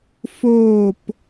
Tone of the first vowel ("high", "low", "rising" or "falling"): falling